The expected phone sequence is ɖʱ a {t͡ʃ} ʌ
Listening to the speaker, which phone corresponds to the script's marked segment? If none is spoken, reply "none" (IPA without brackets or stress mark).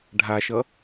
ʃ